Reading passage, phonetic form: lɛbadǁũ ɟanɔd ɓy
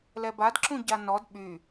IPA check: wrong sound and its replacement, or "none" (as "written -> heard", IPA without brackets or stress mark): none